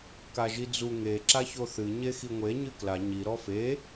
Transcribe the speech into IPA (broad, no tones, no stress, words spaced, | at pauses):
kaʒid͡zu ŋe ǁaçoθɨ ɲexiŋʷe ɲɨkla ɲi ɾɔfe